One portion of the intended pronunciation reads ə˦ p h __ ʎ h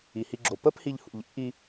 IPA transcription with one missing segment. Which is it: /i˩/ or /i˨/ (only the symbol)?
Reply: i˨